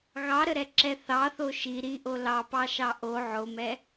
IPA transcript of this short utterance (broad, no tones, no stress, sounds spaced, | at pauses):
ɣ ɑ ɾ ə ɾ ɛ ǁ ɛ θ ɑ θ o ʃ i ɾ i ʔ o l ɑ p ɑ ʃ ɑ ʔ o ʕ o m ɛ